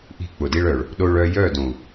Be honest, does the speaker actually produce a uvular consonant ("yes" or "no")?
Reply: no